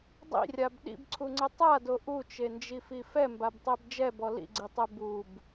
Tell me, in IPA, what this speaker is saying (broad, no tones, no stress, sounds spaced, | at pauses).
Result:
dˤ ḭ rʲ a b ɗ ḭ b ǀʰ u ŋ͡ǀ ɘ tˤ a d o ʔ u t͡ʃ e n d͡ʒ i f i f ɛ m b a b tˤ e b d͡ʒ ɛ b ɔ l ḭ ɡ͡ǀ i tˤ e b u b